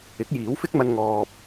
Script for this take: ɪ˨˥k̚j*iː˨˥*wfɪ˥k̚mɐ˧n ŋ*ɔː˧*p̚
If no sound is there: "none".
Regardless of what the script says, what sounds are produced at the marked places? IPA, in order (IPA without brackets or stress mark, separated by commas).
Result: iː˨˥, ɔː˧